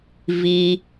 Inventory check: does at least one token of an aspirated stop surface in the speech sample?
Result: no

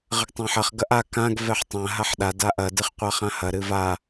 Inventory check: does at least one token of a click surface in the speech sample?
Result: no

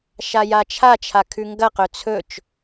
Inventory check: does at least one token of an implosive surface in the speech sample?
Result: no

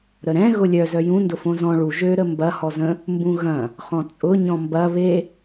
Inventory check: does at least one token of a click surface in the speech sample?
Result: no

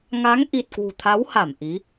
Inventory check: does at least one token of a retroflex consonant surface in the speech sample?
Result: no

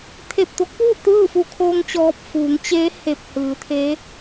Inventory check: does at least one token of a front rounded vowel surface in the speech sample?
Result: no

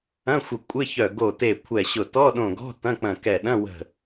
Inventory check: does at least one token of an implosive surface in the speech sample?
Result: yes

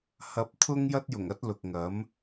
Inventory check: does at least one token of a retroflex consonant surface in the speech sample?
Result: no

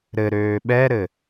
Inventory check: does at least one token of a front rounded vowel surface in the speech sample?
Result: yes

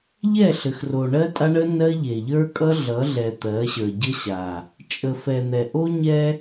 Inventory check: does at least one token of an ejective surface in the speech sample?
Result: yes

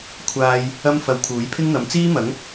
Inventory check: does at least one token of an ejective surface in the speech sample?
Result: no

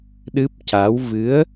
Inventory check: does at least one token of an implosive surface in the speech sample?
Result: yes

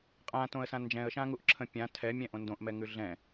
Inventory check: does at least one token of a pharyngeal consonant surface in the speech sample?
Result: no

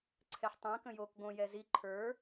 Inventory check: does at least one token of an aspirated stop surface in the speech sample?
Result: yes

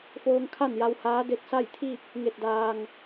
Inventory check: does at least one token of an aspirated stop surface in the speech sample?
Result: yes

